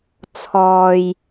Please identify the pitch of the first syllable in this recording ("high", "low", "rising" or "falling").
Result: low